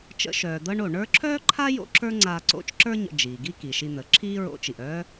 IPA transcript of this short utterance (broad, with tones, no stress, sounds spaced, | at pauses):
t͡ʃ ə̰˧˥ ʃ œː˩ d̪ ɤ˥ ɳ o˩ ɳ ə˞˥ ǁʰ œː˥ ǃʰ a˥ j o̰˥ ǁ ə˞˥ ŋ͡ǀ aː˧ ǀ o̰˧˥ t͡ʃ ǁ ə˞˥ ɲ ə̰˧ d͡ʒ iː˩ ɡ i˥ k i˩ ʃ i˧ n̪ ə˩˧ ǁʰ iː˥ ɹ o̰˧˥ t͡ʃ i˩ ʔ œː˥